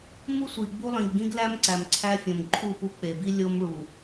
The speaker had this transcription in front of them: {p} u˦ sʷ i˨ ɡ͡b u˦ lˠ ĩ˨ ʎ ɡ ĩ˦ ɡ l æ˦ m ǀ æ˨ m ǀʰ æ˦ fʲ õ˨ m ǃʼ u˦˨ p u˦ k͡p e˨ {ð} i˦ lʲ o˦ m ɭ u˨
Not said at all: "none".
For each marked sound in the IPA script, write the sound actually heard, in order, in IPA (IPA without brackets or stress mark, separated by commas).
m, b